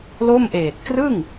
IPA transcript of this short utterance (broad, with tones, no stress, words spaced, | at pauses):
lo˥˩mʔeː˨˩t̚ krɯ˥˩ŋ